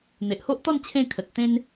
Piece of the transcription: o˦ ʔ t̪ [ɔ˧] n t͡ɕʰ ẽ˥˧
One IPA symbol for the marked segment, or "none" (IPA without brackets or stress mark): ɔ˥˧